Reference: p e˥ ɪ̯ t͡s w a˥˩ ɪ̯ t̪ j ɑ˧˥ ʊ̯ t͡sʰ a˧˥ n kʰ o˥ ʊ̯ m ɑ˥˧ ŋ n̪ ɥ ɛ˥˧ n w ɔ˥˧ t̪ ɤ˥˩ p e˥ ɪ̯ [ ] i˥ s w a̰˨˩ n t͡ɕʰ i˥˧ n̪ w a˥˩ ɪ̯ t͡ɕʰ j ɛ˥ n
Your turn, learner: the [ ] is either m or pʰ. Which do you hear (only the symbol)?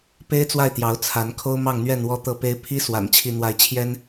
pʰ